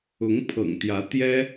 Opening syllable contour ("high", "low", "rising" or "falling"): rising